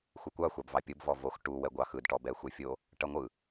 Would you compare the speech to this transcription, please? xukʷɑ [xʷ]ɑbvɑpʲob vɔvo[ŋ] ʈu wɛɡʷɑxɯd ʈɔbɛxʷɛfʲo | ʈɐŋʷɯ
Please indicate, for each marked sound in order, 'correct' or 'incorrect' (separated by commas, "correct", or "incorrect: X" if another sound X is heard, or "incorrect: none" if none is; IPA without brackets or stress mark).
correct, incorrect: x